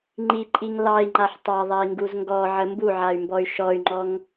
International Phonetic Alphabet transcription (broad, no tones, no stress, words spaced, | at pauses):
ŋ͡ǃiǃʼiŋ lɑi̯ŋ͡ǃaħ tˤɑðˤai̯ŋɡuz ŋɡɔʕə mbuʕay̯mbɔy̯ ʃɔy̯ŋ͡ǃɔŋ